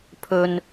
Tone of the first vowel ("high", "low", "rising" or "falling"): low